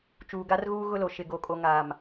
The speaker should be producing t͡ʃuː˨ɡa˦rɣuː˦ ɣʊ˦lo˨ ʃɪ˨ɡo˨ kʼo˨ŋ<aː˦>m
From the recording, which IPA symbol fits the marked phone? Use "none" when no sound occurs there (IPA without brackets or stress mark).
aː˨